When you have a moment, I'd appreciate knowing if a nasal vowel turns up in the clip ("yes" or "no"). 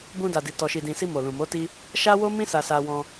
yes